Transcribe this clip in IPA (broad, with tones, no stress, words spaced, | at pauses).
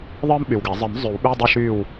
ðˤɨː˥mɓy˨wɡɛ˨˩˦ zˤɨ˨˩˦m zˤy˨˩˦wɓy˧˥˧dˤɐ˥˨ ʃyː˥˨w